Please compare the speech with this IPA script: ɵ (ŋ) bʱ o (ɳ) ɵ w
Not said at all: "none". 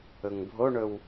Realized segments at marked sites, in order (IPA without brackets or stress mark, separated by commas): ŋ, ɳ